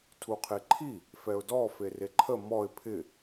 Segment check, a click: present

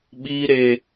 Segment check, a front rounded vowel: absent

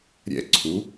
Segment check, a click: present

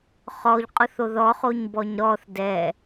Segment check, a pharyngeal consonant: absent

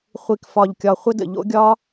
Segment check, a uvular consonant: present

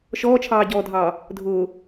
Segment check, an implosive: absent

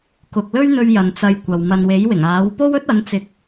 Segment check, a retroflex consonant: absent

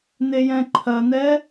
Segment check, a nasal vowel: present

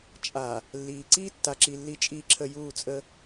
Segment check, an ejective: present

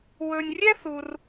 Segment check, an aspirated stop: absent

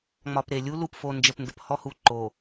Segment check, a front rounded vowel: absent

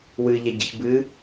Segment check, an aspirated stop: absent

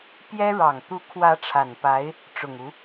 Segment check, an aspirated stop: present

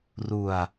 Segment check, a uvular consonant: absent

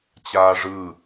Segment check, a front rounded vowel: absent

